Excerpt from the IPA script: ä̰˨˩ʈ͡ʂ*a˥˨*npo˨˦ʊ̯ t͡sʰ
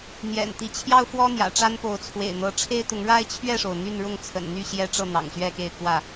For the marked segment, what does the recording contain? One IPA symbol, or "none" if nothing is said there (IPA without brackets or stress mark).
a˦